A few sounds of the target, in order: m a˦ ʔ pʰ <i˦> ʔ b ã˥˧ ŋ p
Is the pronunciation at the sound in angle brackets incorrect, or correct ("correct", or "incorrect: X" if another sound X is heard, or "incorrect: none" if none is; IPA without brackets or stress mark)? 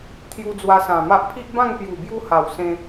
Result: correct